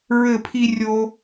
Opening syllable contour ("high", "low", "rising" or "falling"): falling